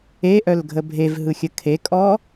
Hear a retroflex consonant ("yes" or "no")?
no